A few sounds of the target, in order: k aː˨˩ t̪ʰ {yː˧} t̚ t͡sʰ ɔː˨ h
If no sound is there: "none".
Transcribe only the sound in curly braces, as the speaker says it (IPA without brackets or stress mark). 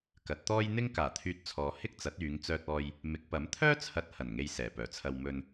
yː˧